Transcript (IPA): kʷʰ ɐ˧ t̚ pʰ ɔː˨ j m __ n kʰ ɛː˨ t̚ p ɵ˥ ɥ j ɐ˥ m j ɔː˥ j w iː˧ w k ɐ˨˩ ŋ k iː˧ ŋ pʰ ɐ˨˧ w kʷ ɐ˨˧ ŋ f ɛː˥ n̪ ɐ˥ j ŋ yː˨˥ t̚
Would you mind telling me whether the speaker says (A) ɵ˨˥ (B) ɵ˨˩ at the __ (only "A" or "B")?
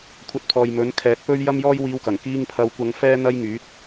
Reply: A